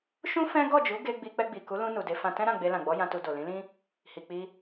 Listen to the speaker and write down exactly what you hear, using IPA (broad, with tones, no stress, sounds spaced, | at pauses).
ʃ ũ˦ f ɛ̃˦ ɡ ɔ˦˨ d͡ʒ u˨˦ ɡ e˧ ɡ͡b i˧ k͡p ɛ˧ ɡ͡b i˨ k u˨˦ l ũ˧ n u˨ d e˧ f ã˧ t ɛ̃˦ ɾ ã˦˨ ɡ͡b e˧ l ã˨ ɡ͡b ɔ˨˦ j ã˧ t u˧ d o˨ l ĩ˨˦ l ĩ˦ | h i˨ k͡p i˧